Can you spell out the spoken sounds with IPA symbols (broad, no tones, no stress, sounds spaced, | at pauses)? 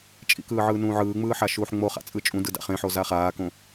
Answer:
t͡ʃʼ ḭ k ɯː ʕ ɯː n ũː ʕ ɯː ŋ͡m ɯː ħ a ʃ uː ħ ŋ͡m o χ a̰ t͡sʼ ɯ t͡ʃʼ ũ d ɯ d a̰ χ ẽ ħ o z a χ aː k õ